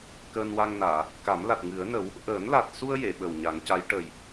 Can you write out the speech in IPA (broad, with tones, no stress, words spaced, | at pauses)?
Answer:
kəː˧nwa˧ŋnaː˨˩˨ | ka˨˩˦mla˨˩t̚ŋɨ˨˩˦ə̯nə˨˩˦w | ʔəː˨˩˦nla˨˩t̚su˧ə̯ je˨˩˨ɓə˨˩wɲa˨˩˦ŋca˧˥j ʈə˨˩j